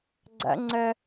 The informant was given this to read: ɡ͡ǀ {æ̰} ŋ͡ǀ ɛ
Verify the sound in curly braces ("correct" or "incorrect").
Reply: correct